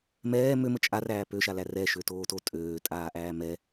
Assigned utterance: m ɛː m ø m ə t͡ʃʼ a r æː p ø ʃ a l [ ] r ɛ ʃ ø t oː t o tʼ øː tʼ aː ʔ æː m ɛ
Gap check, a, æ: æ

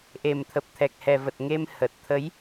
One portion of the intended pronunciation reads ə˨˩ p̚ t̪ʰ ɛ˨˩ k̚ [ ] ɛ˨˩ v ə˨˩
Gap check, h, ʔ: h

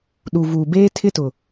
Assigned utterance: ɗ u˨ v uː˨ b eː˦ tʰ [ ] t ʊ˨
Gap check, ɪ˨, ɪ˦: ɪ˦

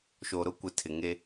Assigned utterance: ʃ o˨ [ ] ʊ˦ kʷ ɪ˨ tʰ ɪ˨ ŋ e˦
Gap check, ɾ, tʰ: ɾ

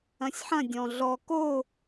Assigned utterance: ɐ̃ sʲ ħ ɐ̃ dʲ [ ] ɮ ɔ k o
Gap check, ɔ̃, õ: ɔ̃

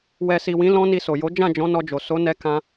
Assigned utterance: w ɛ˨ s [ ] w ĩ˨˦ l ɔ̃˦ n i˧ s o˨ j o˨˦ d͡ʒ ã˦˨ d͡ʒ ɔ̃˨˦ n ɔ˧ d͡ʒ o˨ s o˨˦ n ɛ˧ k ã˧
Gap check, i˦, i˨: i˨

